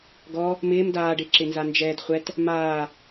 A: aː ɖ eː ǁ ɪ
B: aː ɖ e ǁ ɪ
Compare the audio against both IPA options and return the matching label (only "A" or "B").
B